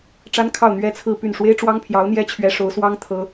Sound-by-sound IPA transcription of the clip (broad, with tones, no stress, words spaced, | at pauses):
ʈ͡ʂa˥nkʰɑ˥˩ʊ̯ n̪ɥɛ˥t͡sʰɹ̩˥˧py˥˩n ʂwe˥ɪ̯ʈ͡ʂwɑ˥ŋpʰjɑ˧˥ʊ̯n̪jɛ˥ t͡ɕʰɥɛ˧˥ʂo˧˥ʊ̯swɑ˥ŋ t̪ʰɤ˥